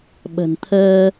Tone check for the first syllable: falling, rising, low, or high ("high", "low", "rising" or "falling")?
low